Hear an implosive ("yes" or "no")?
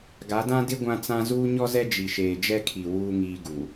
no